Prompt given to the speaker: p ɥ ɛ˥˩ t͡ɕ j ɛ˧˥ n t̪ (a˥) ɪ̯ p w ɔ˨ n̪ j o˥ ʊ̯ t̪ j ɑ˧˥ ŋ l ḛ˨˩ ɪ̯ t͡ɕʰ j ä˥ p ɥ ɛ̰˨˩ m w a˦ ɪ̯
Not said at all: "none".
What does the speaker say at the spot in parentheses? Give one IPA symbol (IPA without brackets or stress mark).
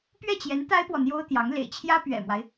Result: a˥